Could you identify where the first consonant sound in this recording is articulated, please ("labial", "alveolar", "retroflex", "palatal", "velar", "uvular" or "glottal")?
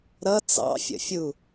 alveolar